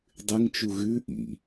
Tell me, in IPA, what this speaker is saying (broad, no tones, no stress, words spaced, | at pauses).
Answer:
dˤɨŋt͡ʃu ɣʉ ʔḭ